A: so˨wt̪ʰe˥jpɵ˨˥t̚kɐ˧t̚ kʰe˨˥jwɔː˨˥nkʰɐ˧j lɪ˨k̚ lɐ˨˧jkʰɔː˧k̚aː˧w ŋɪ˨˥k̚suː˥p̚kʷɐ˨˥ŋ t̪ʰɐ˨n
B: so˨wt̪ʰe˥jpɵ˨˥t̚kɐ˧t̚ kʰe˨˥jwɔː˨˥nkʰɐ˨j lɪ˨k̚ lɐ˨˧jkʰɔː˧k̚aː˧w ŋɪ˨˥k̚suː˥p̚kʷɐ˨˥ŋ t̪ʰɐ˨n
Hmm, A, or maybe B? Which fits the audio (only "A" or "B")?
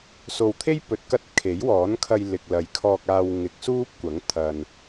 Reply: A